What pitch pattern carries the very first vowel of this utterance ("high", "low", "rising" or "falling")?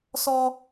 high